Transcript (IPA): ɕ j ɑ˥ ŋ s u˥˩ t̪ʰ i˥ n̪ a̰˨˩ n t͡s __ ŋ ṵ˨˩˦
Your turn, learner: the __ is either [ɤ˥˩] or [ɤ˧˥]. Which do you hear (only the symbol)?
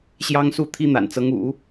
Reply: ɤ˧˥